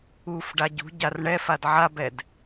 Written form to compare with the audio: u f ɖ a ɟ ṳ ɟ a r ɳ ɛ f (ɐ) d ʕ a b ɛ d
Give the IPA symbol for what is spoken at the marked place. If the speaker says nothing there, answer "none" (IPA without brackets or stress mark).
a